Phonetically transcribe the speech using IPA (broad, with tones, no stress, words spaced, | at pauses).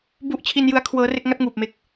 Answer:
bu˥˩ʔ t͡ɕʰi˧njɯ˦˥a̯ kʰwɤː˦˥re˥˩k̚ ŋa˥˩t̚ŋuː˨˩p̚me˦˥k̚